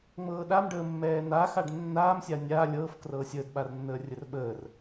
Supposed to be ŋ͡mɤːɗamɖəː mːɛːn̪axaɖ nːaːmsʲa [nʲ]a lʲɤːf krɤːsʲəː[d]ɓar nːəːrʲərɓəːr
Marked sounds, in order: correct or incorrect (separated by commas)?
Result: correct, correct